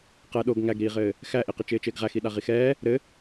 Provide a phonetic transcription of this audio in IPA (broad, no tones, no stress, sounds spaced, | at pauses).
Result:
q ɛ ɗ o ɡ ŋ æ ɡ ɾ iː ʁ ɘː | x æ ʔ i q ɪ t͡ʃ ɪː t͡ʃ ɪː ɡ ʁ æ x i ɗ a ʁ i x ɛː | ɾ ɘ